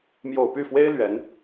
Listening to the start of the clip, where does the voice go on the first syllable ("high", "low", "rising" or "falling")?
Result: low